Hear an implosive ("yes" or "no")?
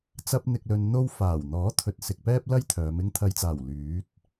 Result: no